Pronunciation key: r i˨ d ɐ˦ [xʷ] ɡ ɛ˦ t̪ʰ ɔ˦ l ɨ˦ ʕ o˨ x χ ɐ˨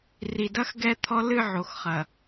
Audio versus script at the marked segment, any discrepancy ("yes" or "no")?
yes